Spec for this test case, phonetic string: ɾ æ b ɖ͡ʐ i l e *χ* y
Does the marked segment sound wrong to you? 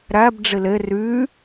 yes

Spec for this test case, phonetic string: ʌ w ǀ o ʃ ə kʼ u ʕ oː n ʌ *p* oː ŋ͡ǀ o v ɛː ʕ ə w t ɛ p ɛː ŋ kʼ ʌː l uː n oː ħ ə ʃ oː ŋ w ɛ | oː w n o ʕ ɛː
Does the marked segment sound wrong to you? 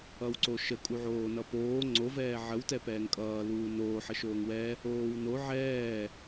no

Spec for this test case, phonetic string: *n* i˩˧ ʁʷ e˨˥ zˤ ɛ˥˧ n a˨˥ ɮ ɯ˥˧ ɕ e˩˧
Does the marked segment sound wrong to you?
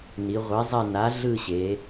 no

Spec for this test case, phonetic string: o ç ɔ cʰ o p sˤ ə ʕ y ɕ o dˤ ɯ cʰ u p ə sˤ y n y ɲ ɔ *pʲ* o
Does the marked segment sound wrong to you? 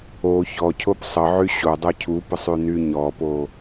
yes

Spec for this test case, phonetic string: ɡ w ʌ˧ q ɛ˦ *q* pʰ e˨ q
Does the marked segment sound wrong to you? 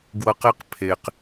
no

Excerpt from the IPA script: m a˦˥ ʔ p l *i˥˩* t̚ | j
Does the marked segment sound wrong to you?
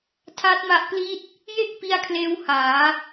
no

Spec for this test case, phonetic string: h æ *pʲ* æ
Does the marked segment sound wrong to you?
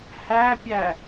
no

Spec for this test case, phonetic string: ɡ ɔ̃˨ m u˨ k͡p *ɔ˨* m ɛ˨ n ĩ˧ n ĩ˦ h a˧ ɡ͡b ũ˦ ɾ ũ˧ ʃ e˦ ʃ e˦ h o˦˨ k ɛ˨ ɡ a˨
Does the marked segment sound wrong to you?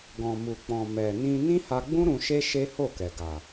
yes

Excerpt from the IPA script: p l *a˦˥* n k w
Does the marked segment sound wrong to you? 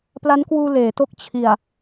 no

